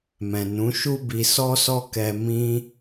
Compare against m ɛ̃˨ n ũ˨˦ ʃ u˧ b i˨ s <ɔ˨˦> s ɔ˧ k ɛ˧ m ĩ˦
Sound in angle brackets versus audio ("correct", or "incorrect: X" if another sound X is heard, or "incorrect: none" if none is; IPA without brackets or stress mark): incorrect: ɔ˧